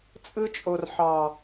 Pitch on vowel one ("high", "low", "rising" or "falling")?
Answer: high